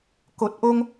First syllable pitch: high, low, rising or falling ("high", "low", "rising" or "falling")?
low